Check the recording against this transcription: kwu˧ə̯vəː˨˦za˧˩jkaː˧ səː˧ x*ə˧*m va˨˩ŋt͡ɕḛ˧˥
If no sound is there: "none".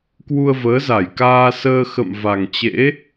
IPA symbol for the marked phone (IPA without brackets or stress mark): ə̰˧˨